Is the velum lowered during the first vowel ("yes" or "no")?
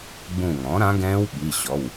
yes